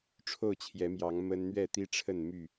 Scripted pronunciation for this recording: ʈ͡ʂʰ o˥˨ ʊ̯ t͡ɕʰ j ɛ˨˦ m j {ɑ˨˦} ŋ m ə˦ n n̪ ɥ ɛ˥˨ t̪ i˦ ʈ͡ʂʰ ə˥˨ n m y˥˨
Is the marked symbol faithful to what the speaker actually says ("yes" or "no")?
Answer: yes